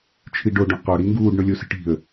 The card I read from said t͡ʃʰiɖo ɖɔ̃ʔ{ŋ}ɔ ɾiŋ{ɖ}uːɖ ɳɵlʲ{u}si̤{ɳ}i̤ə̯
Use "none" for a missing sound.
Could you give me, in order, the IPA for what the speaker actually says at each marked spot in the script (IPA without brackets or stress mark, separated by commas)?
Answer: q, ɡ, o, ʈ